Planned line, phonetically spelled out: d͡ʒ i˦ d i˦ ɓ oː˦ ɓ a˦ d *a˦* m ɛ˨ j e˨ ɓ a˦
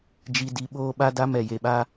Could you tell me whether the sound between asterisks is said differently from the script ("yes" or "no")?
no